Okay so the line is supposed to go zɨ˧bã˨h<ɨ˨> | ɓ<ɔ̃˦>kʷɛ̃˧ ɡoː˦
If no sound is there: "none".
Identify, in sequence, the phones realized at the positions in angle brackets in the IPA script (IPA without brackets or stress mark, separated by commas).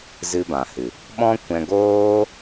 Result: ɨ˨, ɔ̃˦